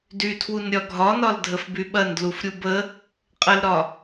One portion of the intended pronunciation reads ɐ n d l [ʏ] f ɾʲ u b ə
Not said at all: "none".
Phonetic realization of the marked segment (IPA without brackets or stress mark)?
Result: u